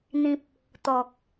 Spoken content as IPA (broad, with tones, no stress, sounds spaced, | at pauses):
n̪ ĩ˨ p̚ | t̪ ɔ˨ k̚